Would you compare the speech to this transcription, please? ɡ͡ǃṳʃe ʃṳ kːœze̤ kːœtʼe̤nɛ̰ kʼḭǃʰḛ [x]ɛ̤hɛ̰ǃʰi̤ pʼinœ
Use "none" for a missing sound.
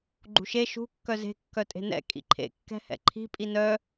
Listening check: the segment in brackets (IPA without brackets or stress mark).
kː